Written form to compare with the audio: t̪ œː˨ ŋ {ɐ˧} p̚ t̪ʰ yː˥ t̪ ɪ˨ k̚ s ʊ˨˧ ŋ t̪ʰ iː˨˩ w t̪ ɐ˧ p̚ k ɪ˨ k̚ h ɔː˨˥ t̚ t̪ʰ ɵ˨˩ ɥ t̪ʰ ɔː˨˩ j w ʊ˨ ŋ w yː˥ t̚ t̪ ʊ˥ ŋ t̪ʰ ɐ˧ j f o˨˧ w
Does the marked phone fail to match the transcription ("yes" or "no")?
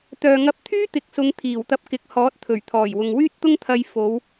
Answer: no